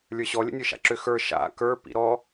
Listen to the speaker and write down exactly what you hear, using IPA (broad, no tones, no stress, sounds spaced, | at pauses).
lʲ ə˞ ɕ ɔ lʲ ə̰ nʲ ə˞ ʃ a̰ ǁ ʏ x ə˞ ʃ a̰ k ə˞ p ḭ ɾ ɔ